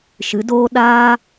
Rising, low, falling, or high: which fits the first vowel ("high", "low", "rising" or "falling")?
rising